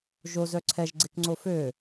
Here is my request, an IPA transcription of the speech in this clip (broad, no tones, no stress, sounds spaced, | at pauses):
ʒ o z œ ǀʰ ɛ ʒ ɡ͡ǀ e k ŋ͡ǀ o f ø